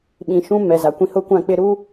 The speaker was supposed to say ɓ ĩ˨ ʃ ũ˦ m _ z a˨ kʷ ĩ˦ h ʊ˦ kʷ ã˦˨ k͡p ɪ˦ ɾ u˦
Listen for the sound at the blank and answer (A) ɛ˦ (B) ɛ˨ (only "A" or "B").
B